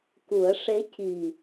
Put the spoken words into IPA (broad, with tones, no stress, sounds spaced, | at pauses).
k u˨˩˦ ə̯ ʂ e˧˥ c i˨˩